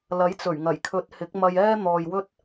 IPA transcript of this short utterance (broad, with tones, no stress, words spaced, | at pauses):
lɐ˨˥jt͡sɵ˨˩ɥŋɐ˨˩jkʰɵ˨˥t̚ hɪ˨˥k̚mɐ˧jɛː˥ n̪ɔː˨jwɵ˥t̚